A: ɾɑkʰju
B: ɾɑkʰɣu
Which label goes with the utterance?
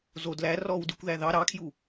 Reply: A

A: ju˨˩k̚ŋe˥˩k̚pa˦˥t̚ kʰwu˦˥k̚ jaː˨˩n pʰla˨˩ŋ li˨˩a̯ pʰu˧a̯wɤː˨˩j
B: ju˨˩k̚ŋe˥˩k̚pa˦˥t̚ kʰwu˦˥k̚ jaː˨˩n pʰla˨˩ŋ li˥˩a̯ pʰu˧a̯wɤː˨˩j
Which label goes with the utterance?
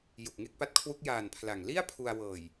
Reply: B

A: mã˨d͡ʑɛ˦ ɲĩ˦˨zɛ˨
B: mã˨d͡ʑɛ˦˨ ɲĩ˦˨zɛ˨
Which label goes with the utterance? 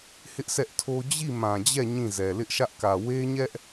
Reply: B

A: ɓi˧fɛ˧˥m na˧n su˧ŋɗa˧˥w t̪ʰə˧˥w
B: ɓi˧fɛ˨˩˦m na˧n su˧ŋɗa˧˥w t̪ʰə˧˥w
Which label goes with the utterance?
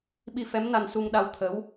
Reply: A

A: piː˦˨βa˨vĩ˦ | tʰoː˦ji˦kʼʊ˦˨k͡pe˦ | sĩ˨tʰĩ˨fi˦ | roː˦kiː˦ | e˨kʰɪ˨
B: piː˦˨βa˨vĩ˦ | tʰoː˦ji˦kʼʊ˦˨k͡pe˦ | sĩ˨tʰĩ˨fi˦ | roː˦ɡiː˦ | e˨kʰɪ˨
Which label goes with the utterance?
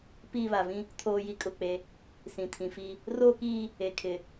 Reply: A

